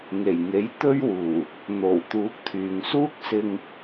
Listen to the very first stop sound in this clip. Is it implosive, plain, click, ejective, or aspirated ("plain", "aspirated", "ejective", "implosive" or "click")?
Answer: plain